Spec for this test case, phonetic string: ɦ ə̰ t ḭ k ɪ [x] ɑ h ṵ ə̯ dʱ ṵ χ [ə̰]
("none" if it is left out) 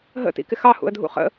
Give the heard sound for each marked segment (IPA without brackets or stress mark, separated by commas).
x, ə̰